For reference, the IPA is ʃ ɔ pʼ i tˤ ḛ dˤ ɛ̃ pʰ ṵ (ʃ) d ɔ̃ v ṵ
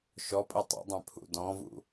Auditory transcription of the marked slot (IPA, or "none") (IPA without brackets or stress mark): none